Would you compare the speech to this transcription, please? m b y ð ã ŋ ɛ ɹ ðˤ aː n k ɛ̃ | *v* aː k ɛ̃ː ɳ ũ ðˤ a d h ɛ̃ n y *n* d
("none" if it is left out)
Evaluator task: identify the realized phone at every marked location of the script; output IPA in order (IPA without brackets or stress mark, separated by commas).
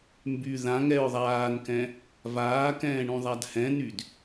v, none